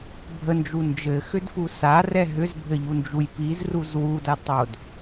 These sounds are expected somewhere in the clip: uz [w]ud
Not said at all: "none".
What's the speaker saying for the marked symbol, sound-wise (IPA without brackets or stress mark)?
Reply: w